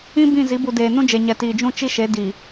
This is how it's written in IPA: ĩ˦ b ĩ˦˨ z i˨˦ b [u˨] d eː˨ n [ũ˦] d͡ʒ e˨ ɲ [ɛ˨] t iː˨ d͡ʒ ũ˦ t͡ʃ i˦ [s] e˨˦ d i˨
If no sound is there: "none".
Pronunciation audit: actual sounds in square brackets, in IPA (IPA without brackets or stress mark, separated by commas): u˨, ũ˦, ɛ˨, ʃ